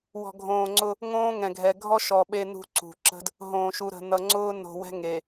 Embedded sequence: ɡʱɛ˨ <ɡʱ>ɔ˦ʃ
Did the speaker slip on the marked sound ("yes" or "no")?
no